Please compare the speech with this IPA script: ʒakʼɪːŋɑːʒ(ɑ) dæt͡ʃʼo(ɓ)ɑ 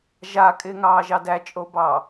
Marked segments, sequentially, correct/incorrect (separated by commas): correct, incorrect